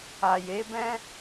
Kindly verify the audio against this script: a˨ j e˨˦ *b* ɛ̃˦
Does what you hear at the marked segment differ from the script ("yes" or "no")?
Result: no